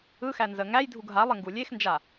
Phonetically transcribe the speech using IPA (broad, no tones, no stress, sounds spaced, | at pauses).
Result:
ɯ x æ n z ə ŋ æ j dʱ u ɡ ɦ a lˠ ə ŋ ɡ u lʲ e x n d͡ʒ a